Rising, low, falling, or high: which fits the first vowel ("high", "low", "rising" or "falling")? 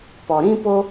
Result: low